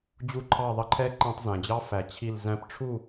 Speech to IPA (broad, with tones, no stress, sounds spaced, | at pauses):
d͡ʑ u˧˩ ǃʰ ɑ˧˩ ðˤ ə˧ ǃʰ ɛ˧˥ ǃ æ̃˧ tˤ z æ̃˩ d͡ʑ ɑ˧˥ f æ˩ t͡ɕʰ i˧˩ l z æ̃˧ p ʈ͡ʂʰ u˥˨